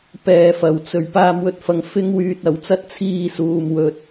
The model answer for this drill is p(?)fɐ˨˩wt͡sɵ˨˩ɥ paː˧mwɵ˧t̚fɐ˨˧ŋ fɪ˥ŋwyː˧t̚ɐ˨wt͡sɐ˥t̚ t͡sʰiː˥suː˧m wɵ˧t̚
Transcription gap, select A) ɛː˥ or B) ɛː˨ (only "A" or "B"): B